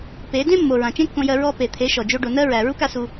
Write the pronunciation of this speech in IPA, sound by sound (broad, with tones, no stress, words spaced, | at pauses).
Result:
pe˨˦ dẽ˦mːo˨ ɹã˨t͡ʃẽ˦kːõ˧jɜ˧ ɹɔ˧ pe˨t̪ʰe˨˦ ʃɔ˨d͡ʒo˦ɖo˧ nɜ˦ ɹæ˨ ɹu˦ka˧su˧